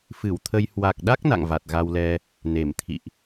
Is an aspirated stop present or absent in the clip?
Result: present